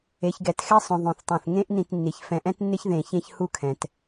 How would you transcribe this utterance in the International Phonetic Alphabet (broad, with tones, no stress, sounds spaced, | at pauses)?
e˩˧ ç ɡ ɛ˩˧ t x ɛ˥ sˤ õ˧ ðˤ õ˧˩ θ tˤ õ˧˩ θ ŋ ẽ˥ ʔ n ĩ˧ t nː i˩˧ ç f ɛ̃˧ ʔ ɛ̃˥ t nː ɪ˥ ç ð ẽ˧˩ ç ẽ˥ ç h u˥˧ kʰ ɛ̃˩˧ t